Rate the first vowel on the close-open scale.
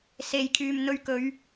mid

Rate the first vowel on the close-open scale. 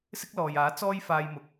close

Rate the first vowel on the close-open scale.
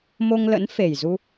mid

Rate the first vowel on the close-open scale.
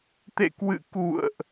mid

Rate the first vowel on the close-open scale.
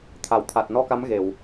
open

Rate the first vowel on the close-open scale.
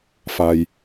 open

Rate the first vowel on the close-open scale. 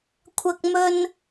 open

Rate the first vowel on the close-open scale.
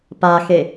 open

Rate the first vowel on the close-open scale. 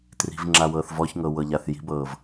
close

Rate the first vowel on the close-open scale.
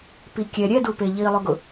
close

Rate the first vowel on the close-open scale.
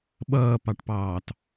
mid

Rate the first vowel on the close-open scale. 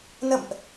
mid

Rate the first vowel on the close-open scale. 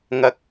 open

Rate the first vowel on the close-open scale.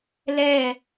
mid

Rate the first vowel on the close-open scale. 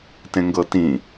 mid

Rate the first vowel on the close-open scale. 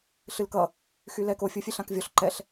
close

